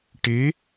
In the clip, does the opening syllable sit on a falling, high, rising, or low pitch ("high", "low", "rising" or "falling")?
rising